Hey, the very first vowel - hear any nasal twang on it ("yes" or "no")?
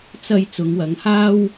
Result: no